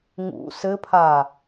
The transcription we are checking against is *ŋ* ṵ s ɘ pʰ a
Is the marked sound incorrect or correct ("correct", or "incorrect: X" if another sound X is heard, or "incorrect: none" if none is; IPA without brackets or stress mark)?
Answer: correct